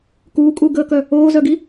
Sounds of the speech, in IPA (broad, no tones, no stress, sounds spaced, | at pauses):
k uː kʼ uː ɡ əː k œ | oː z œ ɡ i